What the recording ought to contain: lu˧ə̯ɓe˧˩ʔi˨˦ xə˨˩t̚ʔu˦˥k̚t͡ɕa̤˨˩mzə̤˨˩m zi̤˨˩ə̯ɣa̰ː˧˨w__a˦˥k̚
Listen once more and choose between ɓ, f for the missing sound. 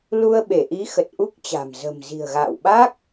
ɓ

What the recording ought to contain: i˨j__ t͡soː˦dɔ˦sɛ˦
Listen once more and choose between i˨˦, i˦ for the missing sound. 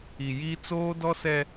i˦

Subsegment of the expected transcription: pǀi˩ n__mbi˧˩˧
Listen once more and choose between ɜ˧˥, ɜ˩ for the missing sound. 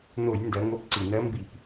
ɜ˧˥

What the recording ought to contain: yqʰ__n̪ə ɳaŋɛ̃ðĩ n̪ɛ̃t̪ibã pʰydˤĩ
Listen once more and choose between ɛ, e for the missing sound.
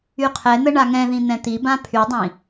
ɛ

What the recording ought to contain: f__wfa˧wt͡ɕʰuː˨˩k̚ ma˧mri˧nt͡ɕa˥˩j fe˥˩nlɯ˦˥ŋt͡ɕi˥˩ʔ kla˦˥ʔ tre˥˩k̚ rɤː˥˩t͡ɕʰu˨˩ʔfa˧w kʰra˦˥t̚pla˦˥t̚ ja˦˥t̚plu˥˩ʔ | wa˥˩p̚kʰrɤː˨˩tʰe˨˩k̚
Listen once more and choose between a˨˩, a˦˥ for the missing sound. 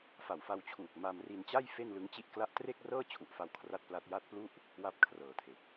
a˨˩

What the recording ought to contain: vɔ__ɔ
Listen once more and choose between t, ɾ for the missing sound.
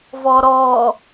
ɾ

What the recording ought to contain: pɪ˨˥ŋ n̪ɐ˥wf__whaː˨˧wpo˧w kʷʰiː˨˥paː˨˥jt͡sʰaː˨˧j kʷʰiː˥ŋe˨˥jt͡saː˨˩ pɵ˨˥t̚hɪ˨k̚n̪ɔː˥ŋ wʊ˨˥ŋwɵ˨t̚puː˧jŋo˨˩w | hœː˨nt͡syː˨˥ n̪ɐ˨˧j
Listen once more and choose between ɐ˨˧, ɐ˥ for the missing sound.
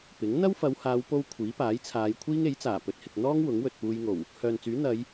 ɐ˨˧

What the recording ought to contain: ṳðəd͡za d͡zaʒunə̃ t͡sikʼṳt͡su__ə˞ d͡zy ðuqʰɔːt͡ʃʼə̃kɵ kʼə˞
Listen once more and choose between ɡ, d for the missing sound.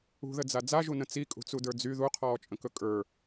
d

